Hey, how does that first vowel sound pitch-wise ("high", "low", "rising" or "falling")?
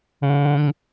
high